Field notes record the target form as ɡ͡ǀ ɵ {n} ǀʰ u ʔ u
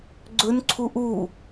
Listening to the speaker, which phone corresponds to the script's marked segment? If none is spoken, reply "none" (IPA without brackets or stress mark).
n